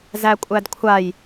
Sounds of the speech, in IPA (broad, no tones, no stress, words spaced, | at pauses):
zækʷʼædkʷʰaj